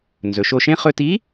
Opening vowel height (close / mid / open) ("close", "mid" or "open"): mid